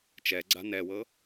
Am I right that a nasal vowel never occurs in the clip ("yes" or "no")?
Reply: yes